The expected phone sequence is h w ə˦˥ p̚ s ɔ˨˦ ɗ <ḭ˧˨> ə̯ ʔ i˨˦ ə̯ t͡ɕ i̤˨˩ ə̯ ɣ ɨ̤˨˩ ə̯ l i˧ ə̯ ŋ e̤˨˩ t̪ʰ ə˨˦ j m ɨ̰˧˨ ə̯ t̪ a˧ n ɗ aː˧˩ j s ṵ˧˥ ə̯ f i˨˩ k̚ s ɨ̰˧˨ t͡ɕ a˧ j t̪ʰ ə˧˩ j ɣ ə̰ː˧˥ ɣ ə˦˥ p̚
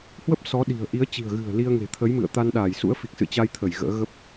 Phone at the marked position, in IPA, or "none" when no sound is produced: i̤˨˩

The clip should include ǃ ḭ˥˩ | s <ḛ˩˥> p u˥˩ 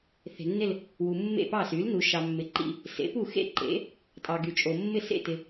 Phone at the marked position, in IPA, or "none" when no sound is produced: ḛ˩˥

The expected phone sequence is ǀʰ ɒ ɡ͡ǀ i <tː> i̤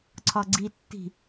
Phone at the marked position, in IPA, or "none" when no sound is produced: tː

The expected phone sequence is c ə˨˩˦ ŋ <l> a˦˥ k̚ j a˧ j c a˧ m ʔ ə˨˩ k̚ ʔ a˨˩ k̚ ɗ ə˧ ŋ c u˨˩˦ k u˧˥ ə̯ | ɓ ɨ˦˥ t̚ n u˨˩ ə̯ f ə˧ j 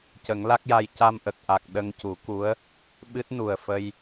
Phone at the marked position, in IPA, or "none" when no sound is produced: l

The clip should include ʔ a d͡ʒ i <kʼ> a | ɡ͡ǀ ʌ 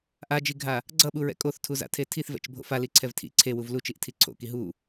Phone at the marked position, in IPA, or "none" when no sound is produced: ɡʱ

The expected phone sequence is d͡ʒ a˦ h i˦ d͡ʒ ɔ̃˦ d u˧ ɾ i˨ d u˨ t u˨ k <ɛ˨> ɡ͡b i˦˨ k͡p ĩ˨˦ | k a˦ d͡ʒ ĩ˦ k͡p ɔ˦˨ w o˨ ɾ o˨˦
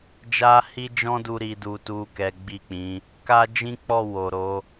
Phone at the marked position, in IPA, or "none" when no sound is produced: ɛ˨˦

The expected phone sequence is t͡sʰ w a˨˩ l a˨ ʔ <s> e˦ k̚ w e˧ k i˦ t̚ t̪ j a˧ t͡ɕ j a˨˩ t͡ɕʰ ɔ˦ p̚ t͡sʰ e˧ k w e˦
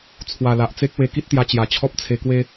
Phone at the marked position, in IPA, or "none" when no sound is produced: t͡s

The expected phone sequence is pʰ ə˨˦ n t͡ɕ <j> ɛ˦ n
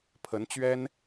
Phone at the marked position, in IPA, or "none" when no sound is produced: ɥ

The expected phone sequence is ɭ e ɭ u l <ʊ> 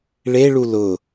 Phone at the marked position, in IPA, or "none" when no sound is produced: ʊ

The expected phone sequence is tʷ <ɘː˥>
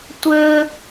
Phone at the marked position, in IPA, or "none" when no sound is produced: ɘː˥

